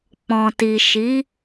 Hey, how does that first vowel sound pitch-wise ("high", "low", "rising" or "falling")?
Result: low